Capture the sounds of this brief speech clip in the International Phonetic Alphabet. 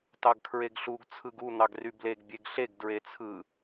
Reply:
t ɑ ɡ kʰ ɹ e ɡ ɬ u ɡ t͡sʰ ɯ ɡ u n̪ ɑ ɡ r y b l e ɡ bʲ e ɡ ɬ e ɡ d ɹ e t͡sʰ ɯ

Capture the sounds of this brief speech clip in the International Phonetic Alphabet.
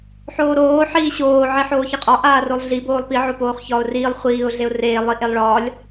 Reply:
ħ oː ɾ oː ħ iː ɕ oː ʕ i ħ oː ç e qʼ ɒ ʔ aː r o lˠ ɮ i b oː lˠ p i ʕ o p oː χ ç ɒː ʊ̯ r iː lˠ χʷ iː ʊ̯ ɮ e ʊ̯ r eː lˠ i ʔ e lˠ ɭ ɒː lʲ

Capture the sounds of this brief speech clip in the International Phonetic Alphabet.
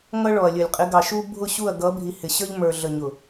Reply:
ŋ ʌ˦ ɭ ɔ˨ ɐ̯ lʲ ə˨ lʲ qʼ ɪ˨˦ ɡ ɑ˨ ʃ u˦ bʱ ʊ˦˨ ɕ u˦˨ ɐ̯ ɡ ʌ˨˦ bʱ i˨ h ɪ˨ ɕ ə˞˦ ʎ m ə˞˨ ɮ ə˨ ɲ ʊ˨

